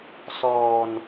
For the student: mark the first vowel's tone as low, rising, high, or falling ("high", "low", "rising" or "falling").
low